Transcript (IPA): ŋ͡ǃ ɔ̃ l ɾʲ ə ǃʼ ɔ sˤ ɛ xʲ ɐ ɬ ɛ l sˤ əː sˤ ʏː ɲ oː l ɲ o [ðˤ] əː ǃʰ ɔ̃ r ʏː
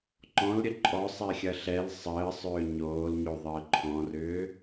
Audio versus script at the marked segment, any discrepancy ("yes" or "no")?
no